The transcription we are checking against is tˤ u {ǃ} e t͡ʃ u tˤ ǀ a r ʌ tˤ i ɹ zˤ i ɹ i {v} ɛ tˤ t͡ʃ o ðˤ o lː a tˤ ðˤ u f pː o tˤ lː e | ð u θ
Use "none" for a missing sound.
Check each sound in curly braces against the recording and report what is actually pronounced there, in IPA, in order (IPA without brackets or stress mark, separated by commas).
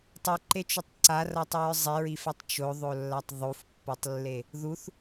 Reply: ǃ, f